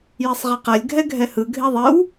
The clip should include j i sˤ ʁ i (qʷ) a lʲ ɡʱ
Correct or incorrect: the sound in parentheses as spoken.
incorrect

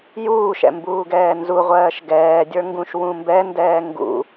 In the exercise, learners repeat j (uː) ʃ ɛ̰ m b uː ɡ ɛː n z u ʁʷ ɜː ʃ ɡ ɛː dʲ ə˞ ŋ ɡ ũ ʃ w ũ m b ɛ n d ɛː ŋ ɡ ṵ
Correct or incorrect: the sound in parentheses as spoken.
correct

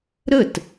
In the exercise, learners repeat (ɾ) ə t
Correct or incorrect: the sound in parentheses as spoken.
correct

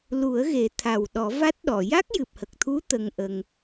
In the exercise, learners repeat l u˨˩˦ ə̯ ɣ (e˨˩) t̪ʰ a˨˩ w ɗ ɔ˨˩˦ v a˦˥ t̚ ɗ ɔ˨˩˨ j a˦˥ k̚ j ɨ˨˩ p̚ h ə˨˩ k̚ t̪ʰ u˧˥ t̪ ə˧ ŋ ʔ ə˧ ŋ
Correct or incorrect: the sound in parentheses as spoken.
incorrect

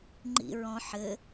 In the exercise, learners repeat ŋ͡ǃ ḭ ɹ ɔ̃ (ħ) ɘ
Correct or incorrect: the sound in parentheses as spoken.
correct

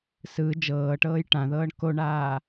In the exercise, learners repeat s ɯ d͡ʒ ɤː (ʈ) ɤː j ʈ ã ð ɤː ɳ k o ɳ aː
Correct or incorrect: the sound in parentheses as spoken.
correct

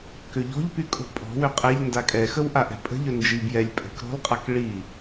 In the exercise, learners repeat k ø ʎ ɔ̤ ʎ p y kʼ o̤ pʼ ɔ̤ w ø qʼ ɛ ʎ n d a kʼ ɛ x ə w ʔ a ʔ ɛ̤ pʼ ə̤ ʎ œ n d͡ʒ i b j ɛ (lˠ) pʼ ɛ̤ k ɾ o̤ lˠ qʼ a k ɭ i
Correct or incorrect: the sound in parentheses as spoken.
incorrect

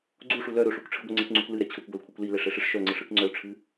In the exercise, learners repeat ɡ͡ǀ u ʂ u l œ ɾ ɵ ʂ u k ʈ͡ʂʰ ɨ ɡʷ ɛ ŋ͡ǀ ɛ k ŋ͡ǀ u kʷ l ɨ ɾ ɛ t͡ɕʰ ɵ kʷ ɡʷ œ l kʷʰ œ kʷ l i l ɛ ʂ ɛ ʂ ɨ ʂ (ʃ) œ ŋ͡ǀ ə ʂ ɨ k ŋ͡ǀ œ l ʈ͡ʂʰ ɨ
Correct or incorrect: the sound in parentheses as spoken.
correct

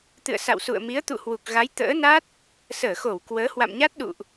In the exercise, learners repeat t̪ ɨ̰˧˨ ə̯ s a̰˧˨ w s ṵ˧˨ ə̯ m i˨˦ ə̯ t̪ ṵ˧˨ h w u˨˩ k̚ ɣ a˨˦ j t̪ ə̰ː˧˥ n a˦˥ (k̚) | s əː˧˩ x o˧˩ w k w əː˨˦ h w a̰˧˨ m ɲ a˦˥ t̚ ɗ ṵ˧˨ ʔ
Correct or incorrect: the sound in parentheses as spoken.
incorrect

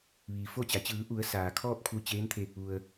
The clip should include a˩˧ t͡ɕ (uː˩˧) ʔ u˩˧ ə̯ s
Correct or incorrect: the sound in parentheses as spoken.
incorrect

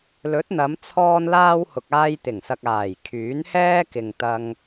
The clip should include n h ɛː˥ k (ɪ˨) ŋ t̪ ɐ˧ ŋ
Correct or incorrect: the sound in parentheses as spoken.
correct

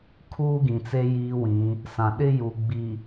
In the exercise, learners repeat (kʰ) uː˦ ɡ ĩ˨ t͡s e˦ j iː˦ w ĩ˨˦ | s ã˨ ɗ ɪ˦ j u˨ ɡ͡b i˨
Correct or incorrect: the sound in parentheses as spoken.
correct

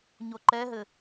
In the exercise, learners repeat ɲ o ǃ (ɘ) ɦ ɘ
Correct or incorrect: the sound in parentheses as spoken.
incorrect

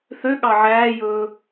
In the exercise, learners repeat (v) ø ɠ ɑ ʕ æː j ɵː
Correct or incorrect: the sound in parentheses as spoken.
incorrect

